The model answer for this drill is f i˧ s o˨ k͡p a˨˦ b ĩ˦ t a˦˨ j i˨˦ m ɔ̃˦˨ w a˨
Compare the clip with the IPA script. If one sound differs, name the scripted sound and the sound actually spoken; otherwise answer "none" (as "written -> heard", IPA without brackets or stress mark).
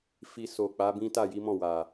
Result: none